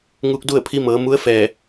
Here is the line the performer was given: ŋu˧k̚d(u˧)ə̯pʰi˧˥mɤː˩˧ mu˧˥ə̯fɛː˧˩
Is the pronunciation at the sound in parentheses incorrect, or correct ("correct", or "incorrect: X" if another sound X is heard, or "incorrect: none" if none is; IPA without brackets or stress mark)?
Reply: incorrect: u˥˨